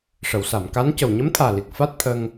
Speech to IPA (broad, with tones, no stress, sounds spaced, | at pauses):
ʂ ə˨˩˨ w s a˨˩˨ m k a˧˥ n c ə˨˩ w ɲ ə˧˥ m t̪ʰ aː˨˩ l i˨˩ k̚ f a˦˥ t̚ t̪ʰ ə˧ ŋ